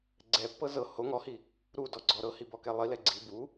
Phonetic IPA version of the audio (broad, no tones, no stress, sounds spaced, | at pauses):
ɡ͡ǀ ɛ pː ɤ z ɤ h o ŋ ɔ h i | ɾ u d ɔ ɡ͡ǀ ɔ ɾ ɤ h i b ɔ k ɛ lˠ i l ɛ ɡ͡ǀ i b u